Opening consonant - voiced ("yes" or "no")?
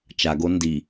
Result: no